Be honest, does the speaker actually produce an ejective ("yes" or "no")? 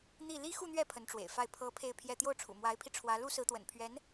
no